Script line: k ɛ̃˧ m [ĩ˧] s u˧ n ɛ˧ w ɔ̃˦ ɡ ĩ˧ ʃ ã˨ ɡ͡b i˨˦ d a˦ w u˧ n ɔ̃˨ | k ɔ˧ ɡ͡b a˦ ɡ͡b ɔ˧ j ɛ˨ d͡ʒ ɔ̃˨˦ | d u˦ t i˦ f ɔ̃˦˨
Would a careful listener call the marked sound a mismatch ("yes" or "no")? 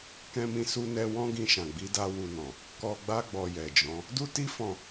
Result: no